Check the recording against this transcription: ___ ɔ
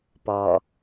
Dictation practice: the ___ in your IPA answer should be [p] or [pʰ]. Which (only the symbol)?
p